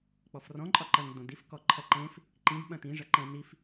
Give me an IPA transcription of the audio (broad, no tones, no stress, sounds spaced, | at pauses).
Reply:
k͡p ɔ f r ɔ̃ ǃʼ ɒ ǃ ɐ ŋ d õ d i f k ɔ ǃʰ ɐ ǃ ẽ f | ǃ ĩ d ɓ ɐ̃ t ĩ ʐ ɐ ǃ ɛ̃ n i f